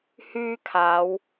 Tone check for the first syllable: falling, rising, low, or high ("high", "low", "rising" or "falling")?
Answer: high